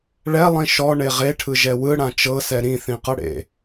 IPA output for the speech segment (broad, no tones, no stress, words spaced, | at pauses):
ɭɛlˠĩ ʃɔɳe ʁeʈʰɯʒɛ wɯɽã t͡ʃɤsɛ ɾĩθĩqɤɽḛ